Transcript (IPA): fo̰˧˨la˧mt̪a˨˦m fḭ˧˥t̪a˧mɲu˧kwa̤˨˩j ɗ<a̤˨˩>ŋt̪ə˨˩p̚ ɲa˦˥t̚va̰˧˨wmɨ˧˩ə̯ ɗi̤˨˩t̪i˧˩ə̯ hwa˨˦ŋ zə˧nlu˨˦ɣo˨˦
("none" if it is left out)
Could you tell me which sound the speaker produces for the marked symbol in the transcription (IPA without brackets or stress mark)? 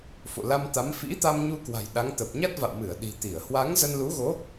a˨˦